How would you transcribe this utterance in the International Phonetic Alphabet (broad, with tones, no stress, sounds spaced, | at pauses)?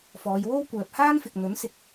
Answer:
f ɔː˨˧ j w o˥ w kʷ œː˨ p̚ h aː˥ n f ɪ˨ k̚ n̪ ɵ˨˥ n s ɪ˨ k̚